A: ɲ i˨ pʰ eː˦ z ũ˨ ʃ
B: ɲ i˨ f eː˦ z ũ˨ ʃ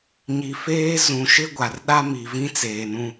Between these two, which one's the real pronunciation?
B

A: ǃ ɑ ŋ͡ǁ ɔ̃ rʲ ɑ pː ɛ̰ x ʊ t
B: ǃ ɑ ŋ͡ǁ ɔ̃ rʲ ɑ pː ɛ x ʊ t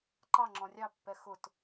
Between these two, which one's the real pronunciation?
B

